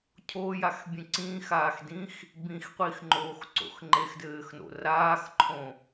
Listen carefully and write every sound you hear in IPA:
cʰ o j a x bʲ ẽ ǀ ĩ x aː x d ĩ x | b ĩ x qʷ i x ŋ͡ǃ oː x ǀ o̰ x ŋ͡ǃ e x d ɘː x n o̰ r aː x ǃʰ õ

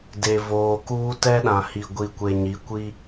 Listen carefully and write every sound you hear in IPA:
d e˨ v oː˨ k uː˦ t ɛ˦ ɗ ã˨ h i˨ ɡʷ i˨ kʷ e˨ ɲ i˨˦ kʷ i˦

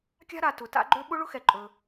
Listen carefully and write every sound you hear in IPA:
kʲ a̤˥ ɾ a˩ t ʊ˩ t a̰˥ ɡ͡ǃ ø˥ ɓ ʊ˥ ɭ ʊ˥ x ɛ˩ ǃʼ ɵ˩

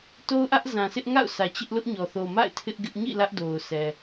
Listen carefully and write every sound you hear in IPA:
t o˦ ʊ̯ ʔ ä˦ ʔ z ã˨ sʰ ɪ˦ ʔ ŋ a̰˦˨ ʊ̯ s ä˨ t͡ɕ ɪ˦ ʔ l ʊ˦ ʔ ɲ ɔ˨ θ o˨ m a̰˦˨ ɪ̯ tʰ ɪ˦ ʔ ɡ ɪ˦ ʔ ɲ ḭ˦˨ l ä˦ ʔ d o˨ ʊ̯ s ɛ˨

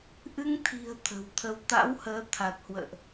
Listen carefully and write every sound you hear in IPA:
ʔ ɨ˧ ŋ t̪ʰ i̤˨˩ ə̯ t̪ʰ ə̤˨˩ w t̪ʰ ə˧ w t̪ a̰˧˥ w h əː˨˦ t̪ʰ a˨˩ t̚ h w ə̰ː˧˨ ʔ

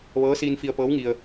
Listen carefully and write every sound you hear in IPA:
ʋ ɤː˧˥ s iː˧ n f i˧ ə̯ p ɤː˧˥ w ŋ i˧ ə̯

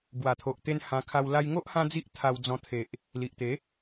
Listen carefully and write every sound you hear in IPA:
ɡ w a˨˩ t̪ʰ o˨ ʔ t̪ e˧ n h ã˧ kʰ a˧ w l a˧ j ŋ o˦ ʔ h ã˦ d͡z i˦ ʔ t̪ʰ a˧ w d͡z ɔ̃˧ t̪ʰ e˨ ʔ | l i˨ ʔ t̪ e˨˦

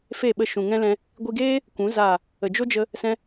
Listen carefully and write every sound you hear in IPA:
f e˦˨ ɓ ə˧ ʃ ũ˨ ŋ ɛ̃˦ l ɛ̃˧ | ɡʷ i˧ ɡ eː˦ | kʷ ũ˨˦ z a˦˨ | ə˨ d͡ʒ o˦ d͡ʒ ə˧ | s ɛ̃˦

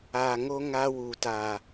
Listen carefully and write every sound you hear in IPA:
a˨ ŋ o˦ ŋ a˦ w u˨ t a˨

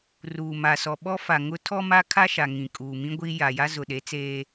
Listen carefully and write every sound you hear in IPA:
r uː˨ m a˨ s ɔ˨ ɓ ɔ˦ f a˨ ŋ ʊ˦ tʰ ɔ˦ m a˦ kʰ a˦ ʃ a˨ ŋ ĩ˨ kʼ uː˨ m ĩ˦ ɡʷ i˦ j a˨ j a˦ z ʊ˨ ɗ e˨˦ t͡s eː˦

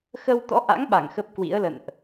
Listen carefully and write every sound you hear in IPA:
x ə˧ w t̪ ɔ̰˧˥ ʔ a̰˧˥ ŋ ɓ a˧˩ ŋ x ə˦˥ p̚ k w ḭ˧˥ ə̯ l ə̰˧˨ n ʔ

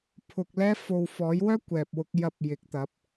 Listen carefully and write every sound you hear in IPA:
pʰ ʊ˧ k̚ l ɛː˥ f o˧ w f ɔː˨˥ j w œː˥ kʷ ɛː˨ p̚ w ʊ˧ k̚ j ɐ˧ p̚ j ɪ˨˥ k̚ t̪ ɐ˨˥ p̚

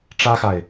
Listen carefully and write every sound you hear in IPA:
ʈ͡ʂ ä˦ x a˨ ɪ̯

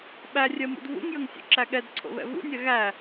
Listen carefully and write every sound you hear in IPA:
ɓ æ rʲ ɜ m ṵ d v ṵ ŋ j ə ŋ sʲ ṵ ǁ æ ɠ ɛ d ǀʰ o̰ β ɛ̰ v ṵ nʲ æ ɣ æ

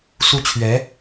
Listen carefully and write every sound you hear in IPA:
s u˥˩ t͡ɕʰ ɥ ɛ˧˥

